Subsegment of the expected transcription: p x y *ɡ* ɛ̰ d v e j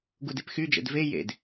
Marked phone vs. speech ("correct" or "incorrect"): incorrect